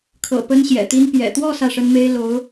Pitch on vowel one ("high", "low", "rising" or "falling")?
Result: low